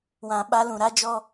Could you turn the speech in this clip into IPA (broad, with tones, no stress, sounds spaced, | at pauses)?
w ã˨ ɓ a˦ l ũ˨ ɾ a˦ d͡ʒ ɔ˦